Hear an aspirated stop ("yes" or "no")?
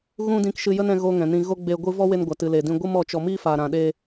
no